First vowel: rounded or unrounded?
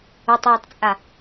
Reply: rounded